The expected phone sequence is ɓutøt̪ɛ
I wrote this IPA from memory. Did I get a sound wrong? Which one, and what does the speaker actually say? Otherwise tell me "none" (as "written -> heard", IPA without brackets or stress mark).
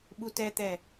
ø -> ɛ